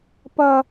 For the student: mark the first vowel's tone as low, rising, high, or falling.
high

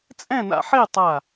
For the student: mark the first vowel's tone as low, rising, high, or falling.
falling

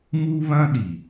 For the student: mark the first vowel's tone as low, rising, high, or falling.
high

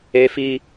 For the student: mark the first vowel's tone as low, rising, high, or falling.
high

